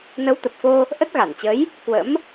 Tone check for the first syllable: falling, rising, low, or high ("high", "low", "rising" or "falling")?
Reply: rising